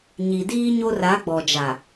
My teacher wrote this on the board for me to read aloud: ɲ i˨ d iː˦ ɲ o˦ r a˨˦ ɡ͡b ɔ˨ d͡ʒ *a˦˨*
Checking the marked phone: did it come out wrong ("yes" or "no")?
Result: yes